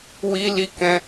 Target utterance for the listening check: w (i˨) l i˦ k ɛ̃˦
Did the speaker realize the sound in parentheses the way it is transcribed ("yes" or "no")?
no